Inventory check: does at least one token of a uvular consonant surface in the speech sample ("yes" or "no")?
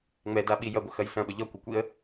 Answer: no